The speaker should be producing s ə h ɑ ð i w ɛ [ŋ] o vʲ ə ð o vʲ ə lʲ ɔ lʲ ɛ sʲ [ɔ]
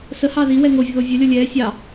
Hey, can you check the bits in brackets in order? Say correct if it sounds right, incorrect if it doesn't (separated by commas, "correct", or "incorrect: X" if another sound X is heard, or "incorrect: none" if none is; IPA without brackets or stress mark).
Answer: correct, incorrect: ɑ